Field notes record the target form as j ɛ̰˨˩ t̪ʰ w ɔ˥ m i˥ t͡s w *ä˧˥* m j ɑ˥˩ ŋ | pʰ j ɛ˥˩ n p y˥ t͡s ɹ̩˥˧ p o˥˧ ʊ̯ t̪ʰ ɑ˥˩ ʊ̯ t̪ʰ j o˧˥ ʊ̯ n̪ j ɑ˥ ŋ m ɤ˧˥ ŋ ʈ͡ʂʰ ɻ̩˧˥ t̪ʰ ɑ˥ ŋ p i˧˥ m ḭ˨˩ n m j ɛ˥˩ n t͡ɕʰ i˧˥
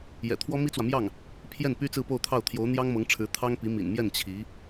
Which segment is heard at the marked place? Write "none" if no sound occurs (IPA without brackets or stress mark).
ä˨